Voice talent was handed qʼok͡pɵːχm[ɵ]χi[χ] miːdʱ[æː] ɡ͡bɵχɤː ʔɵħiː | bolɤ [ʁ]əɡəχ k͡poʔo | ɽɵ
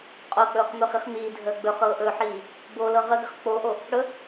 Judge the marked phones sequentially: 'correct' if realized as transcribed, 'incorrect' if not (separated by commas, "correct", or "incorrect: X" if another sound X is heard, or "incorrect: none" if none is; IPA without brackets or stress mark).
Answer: correct, correct, incorrect: əː, correct